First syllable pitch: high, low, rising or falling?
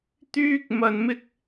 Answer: high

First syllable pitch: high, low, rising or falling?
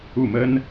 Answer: falling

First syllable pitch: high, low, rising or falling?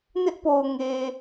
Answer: high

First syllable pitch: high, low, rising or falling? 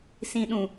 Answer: low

